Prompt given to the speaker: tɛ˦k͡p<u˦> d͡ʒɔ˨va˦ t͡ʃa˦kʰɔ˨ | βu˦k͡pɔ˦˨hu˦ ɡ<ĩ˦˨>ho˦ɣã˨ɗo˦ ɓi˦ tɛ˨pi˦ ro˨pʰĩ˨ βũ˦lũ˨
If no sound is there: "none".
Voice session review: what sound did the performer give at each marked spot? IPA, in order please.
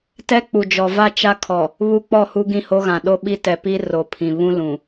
u˨, ĩ˦˨

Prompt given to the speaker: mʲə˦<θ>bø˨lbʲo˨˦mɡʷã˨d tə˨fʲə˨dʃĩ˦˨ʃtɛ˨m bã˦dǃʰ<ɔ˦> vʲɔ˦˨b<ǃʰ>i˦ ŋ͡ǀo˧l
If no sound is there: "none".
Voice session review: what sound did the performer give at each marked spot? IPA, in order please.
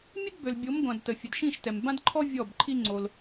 d, ɔ˦, ǃʰ

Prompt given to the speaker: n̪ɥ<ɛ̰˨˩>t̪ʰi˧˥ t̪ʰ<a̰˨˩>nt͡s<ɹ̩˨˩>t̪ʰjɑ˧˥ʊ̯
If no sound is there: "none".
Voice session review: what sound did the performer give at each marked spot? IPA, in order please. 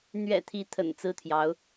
ɛ̰˨˩, ə̰˨˩, ɹ̩˥˩

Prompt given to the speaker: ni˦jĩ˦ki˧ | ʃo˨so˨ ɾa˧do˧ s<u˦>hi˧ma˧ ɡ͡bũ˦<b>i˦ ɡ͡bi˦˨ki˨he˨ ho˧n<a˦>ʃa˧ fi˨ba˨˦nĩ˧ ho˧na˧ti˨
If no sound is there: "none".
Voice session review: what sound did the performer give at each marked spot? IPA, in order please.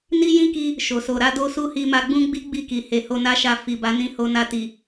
u˦, ɡ͡b, a˦

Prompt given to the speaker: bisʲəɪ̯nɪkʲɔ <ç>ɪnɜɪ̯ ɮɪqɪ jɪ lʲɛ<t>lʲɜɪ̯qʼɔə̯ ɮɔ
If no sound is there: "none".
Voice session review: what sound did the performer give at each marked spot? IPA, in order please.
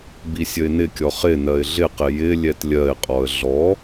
χ, t

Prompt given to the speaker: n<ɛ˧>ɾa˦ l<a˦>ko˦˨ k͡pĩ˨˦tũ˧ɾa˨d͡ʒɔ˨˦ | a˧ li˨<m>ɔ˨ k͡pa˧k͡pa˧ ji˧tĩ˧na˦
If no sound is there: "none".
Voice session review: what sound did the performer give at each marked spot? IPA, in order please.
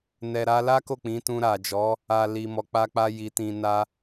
ɛ˧, a˦, m

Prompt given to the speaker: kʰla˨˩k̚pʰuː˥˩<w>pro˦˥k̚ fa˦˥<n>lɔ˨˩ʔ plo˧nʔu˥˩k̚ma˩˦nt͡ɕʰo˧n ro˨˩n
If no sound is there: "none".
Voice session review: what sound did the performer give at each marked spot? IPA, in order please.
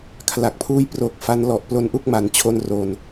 j, n

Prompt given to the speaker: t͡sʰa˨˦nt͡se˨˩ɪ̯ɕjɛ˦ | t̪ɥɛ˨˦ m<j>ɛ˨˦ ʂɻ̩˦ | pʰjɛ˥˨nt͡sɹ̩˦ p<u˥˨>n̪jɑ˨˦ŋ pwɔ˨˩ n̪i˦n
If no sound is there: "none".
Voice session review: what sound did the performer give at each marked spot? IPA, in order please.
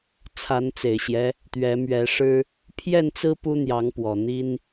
ɥ, u˦

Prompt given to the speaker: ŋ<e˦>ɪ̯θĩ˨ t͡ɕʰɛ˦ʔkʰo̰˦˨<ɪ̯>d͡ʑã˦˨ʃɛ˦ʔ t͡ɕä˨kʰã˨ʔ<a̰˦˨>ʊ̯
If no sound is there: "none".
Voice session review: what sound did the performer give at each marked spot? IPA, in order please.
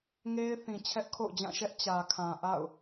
e˦, ʊ̯, a̰˦˨

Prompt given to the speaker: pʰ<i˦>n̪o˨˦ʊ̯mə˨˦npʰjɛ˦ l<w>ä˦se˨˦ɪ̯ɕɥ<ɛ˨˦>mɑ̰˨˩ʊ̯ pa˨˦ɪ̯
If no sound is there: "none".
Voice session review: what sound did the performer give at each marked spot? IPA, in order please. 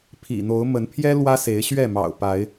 ḭ˨˩, w, ɛ˥˨

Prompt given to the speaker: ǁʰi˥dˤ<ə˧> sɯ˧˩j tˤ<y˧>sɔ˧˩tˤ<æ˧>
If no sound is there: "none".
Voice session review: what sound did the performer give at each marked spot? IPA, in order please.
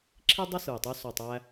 ə˥, u˧, æ˧

